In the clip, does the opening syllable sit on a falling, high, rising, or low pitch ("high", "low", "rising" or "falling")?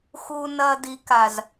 high